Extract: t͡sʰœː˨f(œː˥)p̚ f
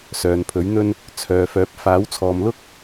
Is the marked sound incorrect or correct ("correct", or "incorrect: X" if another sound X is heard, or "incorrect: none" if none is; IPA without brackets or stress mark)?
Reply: incorrect: œː˨˥